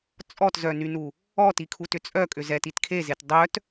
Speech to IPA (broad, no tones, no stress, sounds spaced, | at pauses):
t͡sʼ ɔ t z œ n y n u | ɔ t i kʰ u t ʏ t͡sʼ œ kʼ ʏ z ɛ t i t kʰ e z e t dˤ œ t